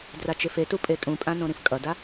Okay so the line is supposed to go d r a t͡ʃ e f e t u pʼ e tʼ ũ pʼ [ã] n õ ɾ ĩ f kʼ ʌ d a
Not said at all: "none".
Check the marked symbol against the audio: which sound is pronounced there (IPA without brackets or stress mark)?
ã